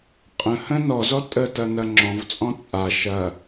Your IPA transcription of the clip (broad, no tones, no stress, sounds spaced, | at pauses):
qʼ ə̃ h ə̃ n ɔ z ɔ tʼ ə t ɐ n ɐ ŋ͡ǁ ɔ̃ v t͡sʼ ɔ̃ t͡sʼ a ʃ ɐ